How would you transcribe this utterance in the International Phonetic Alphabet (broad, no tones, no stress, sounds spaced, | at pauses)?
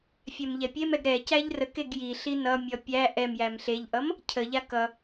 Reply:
fʲ ɛ m ʎ ɛ pʲ e m ɛ ɡ ɾ ɛ c æ ʎ r ə k e ɡ j i ɬ i n ʌ mʲ ʌ pʲ æ ʔ ɛ m j æ m ɬ e ʎ ʔ ʌ m | cʰ ə ʎ a k ʌ